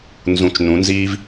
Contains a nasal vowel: yes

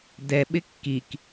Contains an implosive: yes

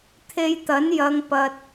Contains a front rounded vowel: no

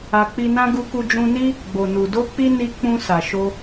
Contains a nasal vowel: yes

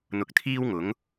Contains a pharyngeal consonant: no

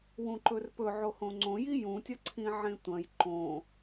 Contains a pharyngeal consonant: yes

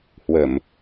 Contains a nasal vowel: no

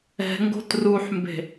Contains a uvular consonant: no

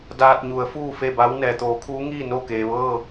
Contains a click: no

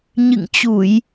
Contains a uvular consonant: no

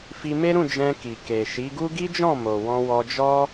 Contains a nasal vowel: yes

